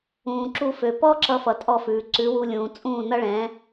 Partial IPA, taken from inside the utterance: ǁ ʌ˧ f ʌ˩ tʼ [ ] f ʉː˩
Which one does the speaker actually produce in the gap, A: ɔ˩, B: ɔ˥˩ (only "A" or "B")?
B